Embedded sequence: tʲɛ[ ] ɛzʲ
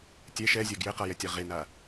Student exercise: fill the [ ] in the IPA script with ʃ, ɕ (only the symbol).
ʃ